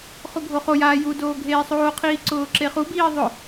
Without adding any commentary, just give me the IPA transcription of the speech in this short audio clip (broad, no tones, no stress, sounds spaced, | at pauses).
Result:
χ u ɡʱ o χ o j aː j u d oː ɡʱ eː sˤ oː qʰ iː ǀ ʊː ǁ e χ u b iː ðˤ ʊ